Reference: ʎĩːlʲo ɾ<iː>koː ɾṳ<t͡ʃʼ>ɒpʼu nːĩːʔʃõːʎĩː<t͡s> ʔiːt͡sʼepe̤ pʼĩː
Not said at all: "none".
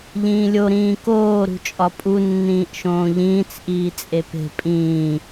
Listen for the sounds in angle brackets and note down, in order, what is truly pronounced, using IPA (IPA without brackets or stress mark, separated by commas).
ĩː, t͡ʃʼ, t͡s